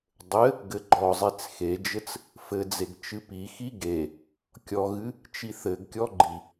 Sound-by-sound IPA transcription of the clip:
dˤ ɘ | ɡ ɘ ɡ͡ǃ ɔ zˤ e t͡s x e d͡ʒ ɘ t͡s | f ɘ d͡z e ɡ t͡ʃ ɨ p i x i ɡ e | kʲ ɔ ɣ ɨ | t͡ʃ i θ ɘ ɡ kʲ ɔ ɡ͡ǃ i

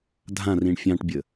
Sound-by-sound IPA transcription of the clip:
dʱ ã r ĩ ɳ fʲ ɑ̃ ʈ bʲ ə

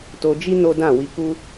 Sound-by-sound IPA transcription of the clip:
t o˧ d͡ʒ i˦ n o˦ d ã˦˨ w i˧ k u˦

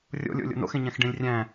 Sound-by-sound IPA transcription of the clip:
rʲ o̰ lʲ o̰ lʲ o̰ n o̰ x ẽ ɲ æ̃ x ɖ ẽ lʲ rʲ æ̃

